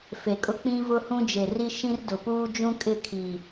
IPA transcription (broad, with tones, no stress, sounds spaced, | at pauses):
f e˨ kʼ ʊ˦ k͡p ĩ˦ v ʊ˦ h ũ˦ d͡ʒ e˨ r i˦ ʃ ĩ˦ r d ʊ˨ p uː˦ d͡ʒ ũ˦ kʼ ɪ˦˨ kʰ i˨